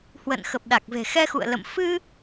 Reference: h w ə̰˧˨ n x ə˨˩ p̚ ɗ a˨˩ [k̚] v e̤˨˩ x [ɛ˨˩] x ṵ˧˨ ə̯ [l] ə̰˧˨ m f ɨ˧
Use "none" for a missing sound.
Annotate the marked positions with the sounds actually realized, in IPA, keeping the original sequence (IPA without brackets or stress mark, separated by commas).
k̚, ɛ˧, l